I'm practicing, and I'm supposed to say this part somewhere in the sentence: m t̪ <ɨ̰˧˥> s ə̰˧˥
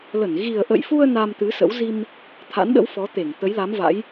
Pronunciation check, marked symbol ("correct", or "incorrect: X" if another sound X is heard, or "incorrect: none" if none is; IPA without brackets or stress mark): incorrect: ɨ˨˦